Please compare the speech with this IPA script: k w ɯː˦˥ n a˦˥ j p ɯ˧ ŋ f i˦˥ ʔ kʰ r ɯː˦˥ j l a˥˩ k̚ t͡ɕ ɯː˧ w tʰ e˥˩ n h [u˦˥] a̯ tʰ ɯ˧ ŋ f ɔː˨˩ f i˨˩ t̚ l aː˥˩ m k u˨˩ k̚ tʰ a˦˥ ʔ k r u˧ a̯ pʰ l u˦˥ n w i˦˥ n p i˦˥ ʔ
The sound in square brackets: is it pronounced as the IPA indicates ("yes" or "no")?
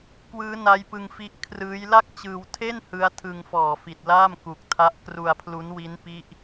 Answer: no